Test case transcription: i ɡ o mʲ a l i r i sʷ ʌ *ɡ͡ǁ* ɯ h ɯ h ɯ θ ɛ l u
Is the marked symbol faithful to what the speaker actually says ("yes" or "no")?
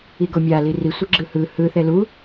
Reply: yes